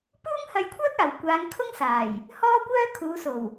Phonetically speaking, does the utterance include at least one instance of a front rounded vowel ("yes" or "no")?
yes